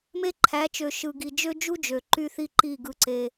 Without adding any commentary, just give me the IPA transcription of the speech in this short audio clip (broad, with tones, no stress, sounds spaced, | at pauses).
m e˦ ǃʰ æ˨˦ t͡ʃ ø˨ ʃ ɯ˨ ɡ i˨ d͡ʒ ø˦ d͡ʒ u˦ d͡ʒ ø˨ ǃ y˦ θ i˦ ǃ i˦˨ ɡ ɯ˦ ǀ e˦